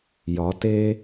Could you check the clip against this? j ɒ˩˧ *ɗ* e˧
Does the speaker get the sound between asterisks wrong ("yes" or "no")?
yes